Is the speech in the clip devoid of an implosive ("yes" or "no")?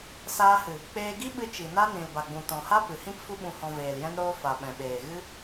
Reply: no